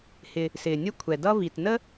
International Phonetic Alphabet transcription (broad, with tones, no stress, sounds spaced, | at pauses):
h ɪ˨ | s ɪː˩ nʲ ə˦ kʷʰ ɛ˩ d ʌ˦ v i˨ t n ə˥